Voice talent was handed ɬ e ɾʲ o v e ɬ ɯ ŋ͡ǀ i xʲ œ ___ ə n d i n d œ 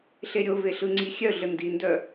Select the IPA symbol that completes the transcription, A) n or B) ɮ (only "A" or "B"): B